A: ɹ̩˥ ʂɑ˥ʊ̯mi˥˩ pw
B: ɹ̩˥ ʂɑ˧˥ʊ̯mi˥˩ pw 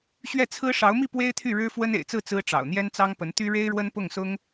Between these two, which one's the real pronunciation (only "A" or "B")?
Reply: B